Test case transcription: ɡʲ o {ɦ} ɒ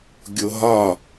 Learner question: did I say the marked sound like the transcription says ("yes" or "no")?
yes